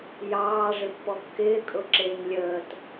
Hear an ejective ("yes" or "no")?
yes